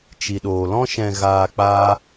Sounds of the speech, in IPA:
t͡ʃ i˨ ɗ oː˨ l ɔ̃˦ ʃ ɛ̃˧ ɣ aː˧ k͡p aː˦

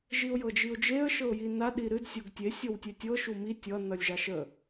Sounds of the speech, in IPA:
ʒ i ʊ̯ j ɤ d͡ʒ i ʊ̯ d͡ʒ e ə̯ ʃ ɤ ʊ̯ j i n a ɗ i ɾ ɨ d sʲ o ɡ tʲ e sʲ o w tʲ e tʲ ɤ ʃ u m i tʲ ʌ n ʌ lʲ ʒ a ʃ ə

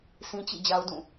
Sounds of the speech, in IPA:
s ĩ˦ t͡ɕ ḭ˦˨ d͡ʑ a˦ ʊ̯ d ũ˦˨

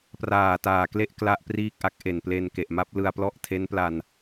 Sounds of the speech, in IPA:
p r aː˨˩ t aː˨˩ k l e˥˩ ʔ k l a˥˩ ʔ p r iː˥˩ k̚ ʔ a˦˥ k̚ ʔ e˨˩ n p l e˧ n k e˨˩ ʔ m a˦˥ p̚ l ɯ˧ a̯ p l ɔ˦˥ ʔ tʰ e˦˥ n p l a˧ n

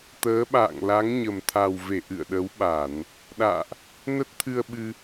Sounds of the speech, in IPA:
t̪ əː˨˦ ɓ a̰ː˧˨ ŋ l a˨˦ ŋ ɲ ə˨˩ m t̪ʰ a˨˩ w v e˧˩ ʔ ɨ̰˧˨ ə̯ ɗ ə˨˦ w ɓ a˧˩˨ n | ɗ a̰ː˧˨ ʔ | n ə˦˥ t̚ t̪ʰ ɨ˧ ə̯ ɓ ɨ˧

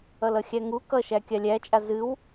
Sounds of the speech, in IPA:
ʌ l ʌ xʲ æ ŋ u k ʌ ʃ æ kʲ a lʲ æ t͡ʃʼ a z ɨ w

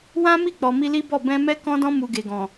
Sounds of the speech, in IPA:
w ã˦ m i˦˨ k͡p ɔ˨ m i˧ l i˦ b ɔ˦˨ b ɛ̃˧ m ɛ˦ k ɔ̃˦ d ɔ̃˦ m u˧ ɡ e˨ ɡ ɔ̃˨

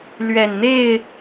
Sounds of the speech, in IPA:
l ɥ ɛ˨˩ n n̪ e˥˨ ɪ̯

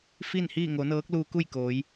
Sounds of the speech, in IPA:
f i˥˨ n h iː˥˨ ŋ o˩˧ n ɤː˧˥ k̚ l uː˧ k u˥˨ j k oː˩˧ j

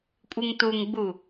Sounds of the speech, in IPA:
kʷʼ ɨ ŋ t u ŋ ɡ͡b u

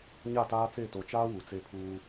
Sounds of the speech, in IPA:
ɲ a˦˨ t aː˦ t͡s e˦˨ t o˨ t͡ʃ aː˦ w u˨ t͡s e˦ pʰ uː˦

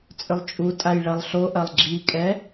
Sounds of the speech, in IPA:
t͡sʼ ʏ lˠ t͡ʃʼ u tʼ a j ɭ ɐ lˠ ɬ o ʔ ɐ lˠ ɡ͡ǁ i kʼ ɛ

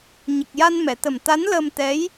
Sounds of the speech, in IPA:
ɲ ə˨˩ k̚ j a˧ n m ɛ˨˩˨ t̪ ə˨˩ m t̪ a˧˥ n l əː˧ m t̪ ɛ˧˥ j

